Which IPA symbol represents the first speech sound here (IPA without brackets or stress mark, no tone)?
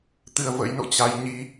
t̪